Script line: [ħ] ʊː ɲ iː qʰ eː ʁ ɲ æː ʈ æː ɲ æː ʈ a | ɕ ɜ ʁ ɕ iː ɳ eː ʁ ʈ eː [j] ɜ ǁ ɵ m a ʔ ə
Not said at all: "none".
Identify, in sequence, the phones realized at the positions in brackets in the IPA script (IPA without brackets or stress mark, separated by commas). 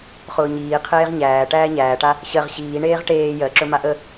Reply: χ, j